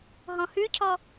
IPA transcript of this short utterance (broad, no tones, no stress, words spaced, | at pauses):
ɦɔ̃hʉcʰɔ